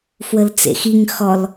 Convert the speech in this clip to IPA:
fwəlt͡sḛxiŋ xɔl

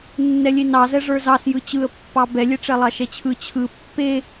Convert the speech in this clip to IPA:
nːɛlʲenɑzɛ ʐə˞zɑsjɯ t͡ɕɯə̯pːɑ bɛlʲeʈ͡ʂɛ lˠɑʃɛt͡ɕʰɯ t͡ɕʰɯ pːe

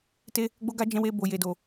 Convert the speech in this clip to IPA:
te˦ | ɡ͡bo˦ɡa˦ d͡ʒɛ̃˧we˧ bo˨je˨do˨

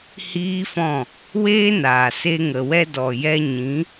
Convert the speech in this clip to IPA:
hiː˦fɔ̃˦˨ | weː˦naː˨se˧ ŋə˨wɛ˧dɔ˨ jɛ˧ɲĩ˨˦

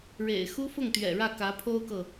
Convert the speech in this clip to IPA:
ɻḛ˨˩ɪ̯ xu˥fʊ˥˩ŋt̪ɥɛ̰˨˩ɻä˥˩ kä˧˥pʰo˥ʊ̯kɤ˨

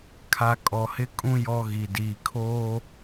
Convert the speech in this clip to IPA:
kʰa˦ kʼɔ˨hɪ˦kʼũ˦ jɔ˦ɣi˨ diː˨kʰoː˦

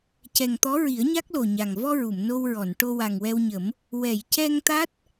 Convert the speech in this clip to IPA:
cɛ˨˩ŋt̪ɔ˧˥ ɹi˨˩˦ə̯ɲa˦˥k̚lo˨˩ ɲa˨˩ŋ vɔ˧ ɹu˨˩˨mno˧wɹɔ˨˩˨n ʈo˧wa˨˩ŋwɛ˧wɲə˨˩˦m | wɛ˨˩˨jcɛ˧ŋt̪a˦˥t̚

